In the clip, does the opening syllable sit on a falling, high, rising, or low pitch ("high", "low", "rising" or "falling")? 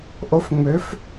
rising